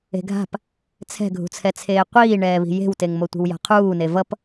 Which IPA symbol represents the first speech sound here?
e̤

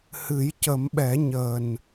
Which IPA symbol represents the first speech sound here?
h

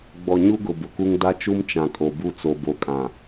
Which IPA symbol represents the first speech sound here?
ɡ͡b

